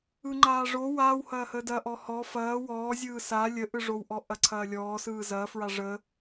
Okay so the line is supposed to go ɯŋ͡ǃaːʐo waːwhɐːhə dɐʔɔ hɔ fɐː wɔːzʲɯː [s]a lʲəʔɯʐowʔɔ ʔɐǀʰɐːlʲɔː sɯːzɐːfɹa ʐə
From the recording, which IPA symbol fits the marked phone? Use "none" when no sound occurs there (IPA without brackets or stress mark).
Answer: s